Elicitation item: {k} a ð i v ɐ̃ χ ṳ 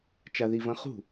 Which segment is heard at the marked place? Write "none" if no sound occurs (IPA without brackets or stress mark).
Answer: t͡ʃ